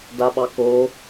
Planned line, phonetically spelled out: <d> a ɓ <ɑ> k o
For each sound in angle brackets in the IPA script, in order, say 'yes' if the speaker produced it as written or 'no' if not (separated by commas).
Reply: yes, yes